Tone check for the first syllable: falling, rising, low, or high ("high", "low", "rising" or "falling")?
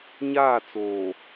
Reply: falling